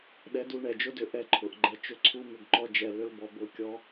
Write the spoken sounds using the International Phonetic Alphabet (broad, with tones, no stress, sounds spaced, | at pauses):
ɗ ɛ˧ d u˧ ɳ ɛ˨ d͡ʒ ʊ˦ d ʏ˧ ʔ ɛ˧ ǃʰ ʊ˨ ʔ ɡ͡ǃ ɛ˧ t͡ʃ ʏ˧ ǀʰ u˧ m ʏ˦˨ ɡ ǃ ɔ˦ d͡ʒ ɛ˧ l ʏ˦ l b ɔ˧ b ʊ˦˨ kʲ ɔ˦